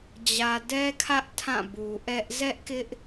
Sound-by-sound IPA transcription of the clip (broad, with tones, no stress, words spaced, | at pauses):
d͡ʑä˨dɛ˦kʰä˦ʔ tʰã˦˨bu˨ʔɛ˦ʔ zɛ˦ʔkɪ˦ʔ